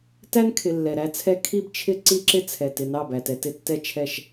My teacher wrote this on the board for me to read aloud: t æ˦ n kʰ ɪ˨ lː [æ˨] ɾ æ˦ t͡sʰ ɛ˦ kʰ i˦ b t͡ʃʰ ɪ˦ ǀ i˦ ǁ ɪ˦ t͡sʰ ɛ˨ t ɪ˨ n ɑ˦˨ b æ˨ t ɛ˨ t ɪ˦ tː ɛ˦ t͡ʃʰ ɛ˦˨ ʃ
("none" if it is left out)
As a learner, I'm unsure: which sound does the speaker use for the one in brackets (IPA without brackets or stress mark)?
ɛ˨